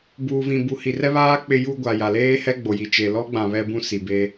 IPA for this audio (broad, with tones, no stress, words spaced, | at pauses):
buː˨vĩ˨ bu˨hi˨rɛ˦βaː˦ k͡pɪ˦ju˦ ɡʷa˨ja˨ leː˦hɛ˦ɡ͡bo˨ji˨ t͡ʃe˨lɔ˦ɡ͡bã˨ βɛ˦bũ˦ si˨be˦